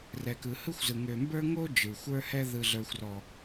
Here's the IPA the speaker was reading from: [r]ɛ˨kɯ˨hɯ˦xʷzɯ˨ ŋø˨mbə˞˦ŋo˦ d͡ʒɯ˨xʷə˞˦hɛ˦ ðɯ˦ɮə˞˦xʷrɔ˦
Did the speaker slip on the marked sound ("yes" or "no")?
no